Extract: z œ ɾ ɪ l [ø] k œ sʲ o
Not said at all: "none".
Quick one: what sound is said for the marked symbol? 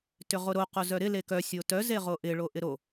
e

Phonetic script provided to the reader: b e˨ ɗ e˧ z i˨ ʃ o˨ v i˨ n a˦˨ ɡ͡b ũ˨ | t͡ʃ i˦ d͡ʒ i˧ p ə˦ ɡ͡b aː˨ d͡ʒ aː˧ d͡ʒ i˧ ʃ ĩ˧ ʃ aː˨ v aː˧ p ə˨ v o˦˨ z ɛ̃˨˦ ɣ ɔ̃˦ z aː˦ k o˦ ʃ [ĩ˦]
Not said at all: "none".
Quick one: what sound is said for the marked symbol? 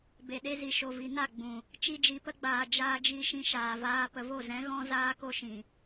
ĩ˨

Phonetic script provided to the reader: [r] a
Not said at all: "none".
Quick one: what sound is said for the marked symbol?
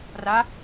r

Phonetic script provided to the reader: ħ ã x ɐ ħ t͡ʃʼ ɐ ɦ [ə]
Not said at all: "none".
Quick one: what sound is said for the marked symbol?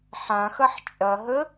ə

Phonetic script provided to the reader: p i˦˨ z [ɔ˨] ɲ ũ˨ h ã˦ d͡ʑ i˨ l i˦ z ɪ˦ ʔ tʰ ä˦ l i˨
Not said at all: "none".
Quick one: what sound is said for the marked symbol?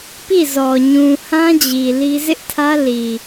ɔ˨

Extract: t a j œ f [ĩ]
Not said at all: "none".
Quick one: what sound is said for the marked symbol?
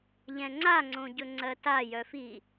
i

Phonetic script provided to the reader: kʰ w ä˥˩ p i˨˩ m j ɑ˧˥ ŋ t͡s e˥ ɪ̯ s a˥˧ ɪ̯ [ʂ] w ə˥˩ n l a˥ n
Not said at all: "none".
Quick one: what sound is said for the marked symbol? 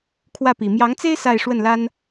ʂ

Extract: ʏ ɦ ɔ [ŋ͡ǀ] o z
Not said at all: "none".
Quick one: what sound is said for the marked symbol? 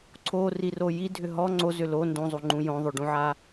ŋ͡ǀ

